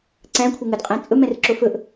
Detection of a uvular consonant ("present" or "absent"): present